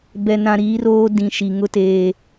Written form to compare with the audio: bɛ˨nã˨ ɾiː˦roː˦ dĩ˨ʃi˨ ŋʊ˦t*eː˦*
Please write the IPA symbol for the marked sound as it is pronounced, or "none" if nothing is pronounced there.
eː˦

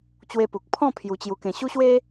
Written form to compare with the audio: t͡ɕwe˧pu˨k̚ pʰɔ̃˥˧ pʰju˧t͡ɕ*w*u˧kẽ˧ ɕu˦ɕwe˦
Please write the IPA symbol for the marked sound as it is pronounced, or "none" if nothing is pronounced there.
j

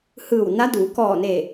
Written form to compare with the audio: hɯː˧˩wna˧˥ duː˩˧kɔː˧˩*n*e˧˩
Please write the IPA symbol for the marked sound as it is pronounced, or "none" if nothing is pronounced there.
n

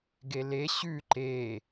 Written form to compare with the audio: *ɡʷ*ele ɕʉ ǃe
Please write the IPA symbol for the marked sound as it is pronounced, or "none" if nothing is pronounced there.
ɡ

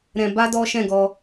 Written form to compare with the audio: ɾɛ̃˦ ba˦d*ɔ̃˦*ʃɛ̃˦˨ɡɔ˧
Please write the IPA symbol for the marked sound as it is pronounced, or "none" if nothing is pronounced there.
ɔ˦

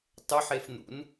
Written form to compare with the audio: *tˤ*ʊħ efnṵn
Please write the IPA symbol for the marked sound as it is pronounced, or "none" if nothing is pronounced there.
tˤ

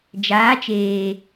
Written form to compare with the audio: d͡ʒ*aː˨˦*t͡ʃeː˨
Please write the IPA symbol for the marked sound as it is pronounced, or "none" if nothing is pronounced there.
aː˨˦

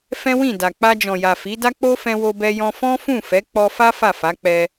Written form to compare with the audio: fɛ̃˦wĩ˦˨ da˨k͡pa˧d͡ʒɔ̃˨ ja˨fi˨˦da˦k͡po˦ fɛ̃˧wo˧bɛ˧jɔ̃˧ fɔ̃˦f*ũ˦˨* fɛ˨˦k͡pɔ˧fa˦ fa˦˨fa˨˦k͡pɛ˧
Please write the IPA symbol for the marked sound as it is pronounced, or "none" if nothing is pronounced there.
ũ˦˨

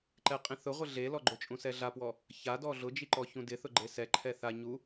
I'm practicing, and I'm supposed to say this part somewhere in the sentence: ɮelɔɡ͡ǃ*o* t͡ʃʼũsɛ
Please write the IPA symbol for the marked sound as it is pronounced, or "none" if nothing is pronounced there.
o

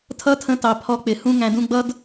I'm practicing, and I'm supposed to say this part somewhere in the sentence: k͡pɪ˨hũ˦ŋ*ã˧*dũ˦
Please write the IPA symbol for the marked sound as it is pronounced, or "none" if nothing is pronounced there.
æ̃˧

